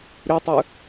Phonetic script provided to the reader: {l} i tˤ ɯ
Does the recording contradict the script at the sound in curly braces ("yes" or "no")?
yes